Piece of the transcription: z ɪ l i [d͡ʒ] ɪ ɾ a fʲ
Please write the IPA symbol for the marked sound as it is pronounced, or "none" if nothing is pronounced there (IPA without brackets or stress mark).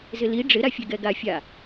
ɖ͡ʐ